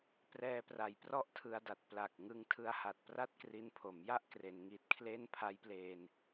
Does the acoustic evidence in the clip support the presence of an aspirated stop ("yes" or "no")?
yes